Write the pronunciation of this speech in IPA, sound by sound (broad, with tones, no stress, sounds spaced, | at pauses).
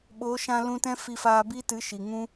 ɓ o˨˦ ʃ ã˧ l ũ˧ t ɛ̃˦ f i˧ f aː˧ b i˦ t ɨ˨˦ ʃ i˨ ŋ ũ˦